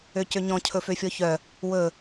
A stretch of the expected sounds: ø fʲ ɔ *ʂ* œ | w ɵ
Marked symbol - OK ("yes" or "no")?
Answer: no